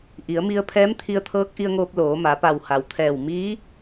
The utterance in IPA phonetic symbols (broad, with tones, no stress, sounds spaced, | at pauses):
ʔ i˩˧ ə̯ m i˧ ə̯ pʰ ɛː˧˥ m t̪ʰ i˧ ə̯ t̪ʰ ɤː˧˥ k̚ ʔ i˧ ə̯ ŋ oː˧ p̚ l oː˩˧ m a˩˧ p a˧˩ w h a˩ w t̪ʰ ɛː˧˩ w m iː˧˥